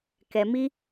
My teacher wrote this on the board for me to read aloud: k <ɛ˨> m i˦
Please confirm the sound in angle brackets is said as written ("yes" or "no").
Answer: yes